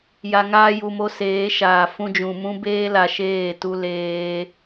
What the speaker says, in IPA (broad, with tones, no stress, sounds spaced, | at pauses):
j a˨ ŋ aː˧ j u˨ m o˧ s eː˨˦ ʃ aː˨ f ũ˧ d͡ʒ ũ˨ m ũ˦ b eː˦ l a˧ ʃ eː˦˨ t u˦ l eː˦